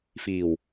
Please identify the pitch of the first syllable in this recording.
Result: low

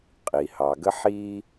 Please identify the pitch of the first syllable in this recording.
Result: low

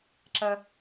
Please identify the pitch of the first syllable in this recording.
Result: high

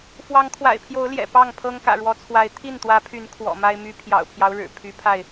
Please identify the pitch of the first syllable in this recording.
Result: rising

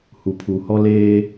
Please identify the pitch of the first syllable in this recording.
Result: low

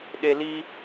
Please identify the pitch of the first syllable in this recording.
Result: low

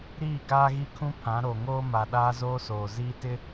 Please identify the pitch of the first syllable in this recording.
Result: falling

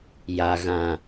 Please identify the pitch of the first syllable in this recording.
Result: low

